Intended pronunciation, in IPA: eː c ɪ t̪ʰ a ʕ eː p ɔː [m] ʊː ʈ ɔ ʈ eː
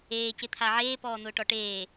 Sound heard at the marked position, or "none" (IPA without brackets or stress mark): n̪